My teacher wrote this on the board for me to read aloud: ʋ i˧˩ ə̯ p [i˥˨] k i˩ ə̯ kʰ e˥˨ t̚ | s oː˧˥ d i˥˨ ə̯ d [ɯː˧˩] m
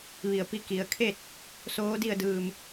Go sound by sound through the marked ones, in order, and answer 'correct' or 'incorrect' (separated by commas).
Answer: correct, correct